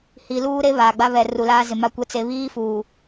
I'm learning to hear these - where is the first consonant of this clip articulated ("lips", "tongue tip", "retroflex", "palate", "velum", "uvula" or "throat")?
throat